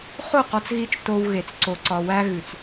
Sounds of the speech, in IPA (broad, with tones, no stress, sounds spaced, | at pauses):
χ o˦˨ q ɒ˦ t͡s ɣ i˦ t͡ʃ t o˦ w ɣ e˨ t͡s ǀ o˨ ǀ ɒ˨ w æ˦ ɣ ʉ˨ t͡s